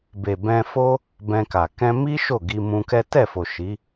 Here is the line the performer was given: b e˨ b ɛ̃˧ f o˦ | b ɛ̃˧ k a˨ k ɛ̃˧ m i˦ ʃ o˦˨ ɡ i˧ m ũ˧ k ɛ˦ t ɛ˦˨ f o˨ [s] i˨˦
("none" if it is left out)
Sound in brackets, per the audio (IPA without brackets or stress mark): ʃ